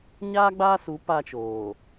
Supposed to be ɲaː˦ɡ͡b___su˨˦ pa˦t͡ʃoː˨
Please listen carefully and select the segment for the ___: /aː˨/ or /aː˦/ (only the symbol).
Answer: aː˦